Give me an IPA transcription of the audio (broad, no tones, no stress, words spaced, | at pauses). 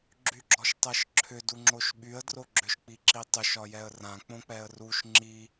ɡ͡ǁyɡ͡ǁɔʃtˤɤʃǁʰʏ duŋ͡ǁoʃɓyə̯ droɡ͡ǁʏʃ k͡piǁitˤʏ ʃɒjɛə̯rã k͡põk͡pɛə̯ruʃ ŋ͡ǁi